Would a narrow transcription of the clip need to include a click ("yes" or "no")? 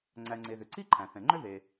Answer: yes